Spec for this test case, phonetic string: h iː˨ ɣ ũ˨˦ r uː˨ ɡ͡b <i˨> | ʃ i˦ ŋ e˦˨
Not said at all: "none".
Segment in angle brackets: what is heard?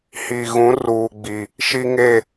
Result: i˨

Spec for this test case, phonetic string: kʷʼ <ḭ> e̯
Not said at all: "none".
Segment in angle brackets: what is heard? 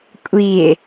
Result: i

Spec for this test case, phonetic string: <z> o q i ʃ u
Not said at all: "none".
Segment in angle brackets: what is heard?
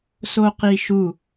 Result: s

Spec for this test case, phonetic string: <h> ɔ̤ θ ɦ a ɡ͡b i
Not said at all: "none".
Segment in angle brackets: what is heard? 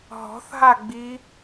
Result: ɦ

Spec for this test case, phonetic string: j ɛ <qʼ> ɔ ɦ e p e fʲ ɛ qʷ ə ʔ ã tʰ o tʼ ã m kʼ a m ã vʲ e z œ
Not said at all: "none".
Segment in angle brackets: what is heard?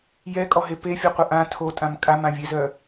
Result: kʼ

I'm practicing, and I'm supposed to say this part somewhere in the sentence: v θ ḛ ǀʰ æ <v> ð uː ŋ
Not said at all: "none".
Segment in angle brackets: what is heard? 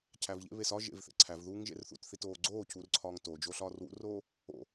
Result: v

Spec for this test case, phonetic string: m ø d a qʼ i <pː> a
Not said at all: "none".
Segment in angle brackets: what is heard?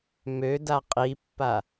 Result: pː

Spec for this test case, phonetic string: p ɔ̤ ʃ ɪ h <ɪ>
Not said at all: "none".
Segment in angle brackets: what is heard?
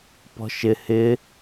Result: ɪ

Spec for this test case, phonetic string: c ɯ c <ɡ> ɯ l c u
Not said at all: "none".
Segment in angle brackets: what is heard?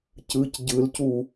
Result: ɟ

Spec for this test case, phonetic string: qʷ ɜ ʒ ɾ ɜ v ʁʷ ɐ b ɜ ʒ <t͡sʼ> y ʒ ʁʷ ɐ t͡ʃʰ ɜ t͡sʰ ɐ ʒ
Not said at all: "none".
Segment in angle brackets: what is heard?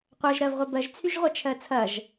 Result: t͡sʰ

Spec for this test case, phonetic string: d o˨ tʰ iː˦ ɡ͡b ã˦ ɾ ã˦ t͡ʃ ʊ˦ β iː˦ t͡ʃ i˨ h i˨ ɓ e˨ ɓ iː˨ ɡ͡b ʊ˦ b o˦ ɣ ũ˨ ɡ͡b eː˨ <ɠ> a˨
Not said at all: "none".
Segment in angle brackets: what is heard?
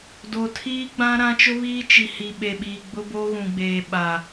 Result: ɓ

